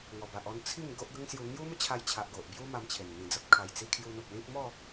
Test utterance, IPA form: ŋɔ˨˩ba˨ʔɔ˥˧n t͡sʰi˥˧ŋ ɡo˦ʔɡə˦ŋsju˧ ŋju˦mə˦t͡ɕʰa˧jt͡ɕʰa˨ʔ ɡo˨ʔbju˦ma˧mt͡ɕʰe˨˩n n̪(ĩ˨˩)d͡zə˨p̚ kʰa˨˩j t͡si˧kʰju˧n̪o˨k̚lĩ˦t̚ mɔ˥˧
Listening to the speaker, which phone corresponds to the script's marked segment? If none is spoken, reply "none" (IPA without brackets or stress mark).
ĩ˨˩